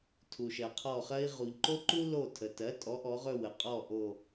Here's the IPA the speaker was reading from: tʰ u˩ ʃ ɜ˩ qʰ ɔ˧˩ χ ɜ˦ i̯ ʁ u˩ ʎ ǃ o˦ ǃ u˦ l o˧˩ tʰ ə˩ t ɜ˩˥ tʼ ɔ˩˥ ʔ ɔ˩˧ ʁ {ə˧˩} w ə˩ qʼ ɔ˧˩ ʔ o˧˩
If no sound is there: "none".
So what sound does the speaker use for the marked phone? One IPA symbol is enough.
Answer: ɵ˧˩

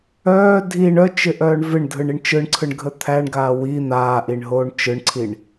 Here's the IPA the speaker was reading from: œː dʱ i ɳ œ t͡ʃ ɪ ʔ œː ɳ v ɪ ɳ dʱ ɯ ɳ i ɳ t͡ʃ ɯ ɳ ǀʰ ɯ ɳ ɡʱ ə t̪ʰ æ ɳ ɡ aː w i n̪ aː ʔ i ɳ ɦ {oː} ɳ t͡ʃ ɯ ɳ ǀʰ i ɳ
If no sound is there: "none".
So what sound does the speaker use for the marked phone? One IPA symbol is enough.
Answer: oː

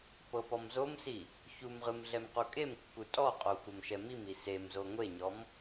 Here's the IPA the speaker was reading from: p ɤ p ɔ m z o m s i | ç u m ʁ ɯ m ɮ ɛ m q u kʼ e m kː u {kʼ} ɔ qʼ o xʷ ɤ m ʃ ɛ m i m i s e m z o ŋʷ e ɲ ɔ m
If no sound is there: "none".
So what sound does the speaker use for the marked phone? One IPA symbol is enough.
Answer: tʼ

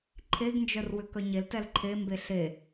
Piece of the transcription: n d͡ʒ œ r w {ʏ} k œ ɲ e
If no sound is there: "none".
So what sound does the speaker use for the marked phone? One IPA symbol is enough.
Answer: ʏ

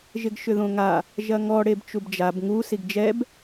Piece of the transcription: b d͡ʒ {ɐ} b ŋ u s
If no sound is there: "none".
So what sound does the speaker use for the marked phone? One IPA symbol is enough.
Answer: a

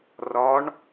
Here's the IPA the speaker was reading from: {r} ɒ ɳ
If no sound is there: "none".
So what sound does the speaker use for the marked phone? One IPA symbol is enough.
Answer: r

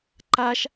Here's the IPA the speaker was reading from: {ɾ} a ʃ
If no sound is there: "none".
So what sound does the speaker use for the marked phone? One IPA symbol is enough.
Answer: ǃ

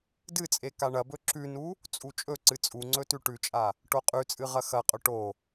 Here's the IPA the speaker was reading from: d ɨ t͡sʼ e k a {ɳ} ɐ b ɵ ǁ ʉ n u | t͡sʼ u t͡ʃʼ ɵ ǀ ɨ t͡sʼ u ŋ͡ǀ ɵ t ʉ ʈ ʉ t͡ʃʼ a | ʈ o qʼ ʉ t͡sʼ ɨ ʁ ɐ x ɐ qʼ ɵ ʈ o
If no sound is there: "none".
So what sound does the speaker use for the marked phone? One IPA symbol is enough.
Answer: ɳ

